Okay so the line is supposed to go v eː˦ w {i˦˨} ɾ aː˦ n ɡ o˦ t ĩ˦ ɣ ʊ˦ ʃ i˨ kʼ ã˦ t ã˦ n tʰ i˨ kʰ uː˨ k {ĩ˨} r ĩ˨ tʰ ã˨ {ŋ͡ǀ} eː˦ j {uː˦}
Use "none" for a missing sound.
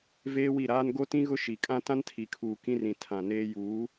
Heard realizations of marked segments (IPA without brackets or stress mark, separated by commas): i˦˨, ĩ˦, n, uː˨˦